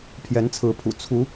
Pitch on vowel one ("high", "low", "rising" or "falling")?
rising